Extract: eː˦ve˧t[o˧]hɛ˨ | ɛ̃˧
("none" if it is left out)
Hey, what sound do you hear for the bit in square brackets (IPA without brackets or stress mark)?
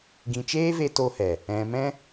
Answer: o˧